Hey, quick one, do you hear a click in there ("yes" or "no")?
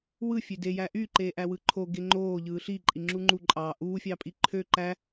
yes